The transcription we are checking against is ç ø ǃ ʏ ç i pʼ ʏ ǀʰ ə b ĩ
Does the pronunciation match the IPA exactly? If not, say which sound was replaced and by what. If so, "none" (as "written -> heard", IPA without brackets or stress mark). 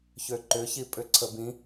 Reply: none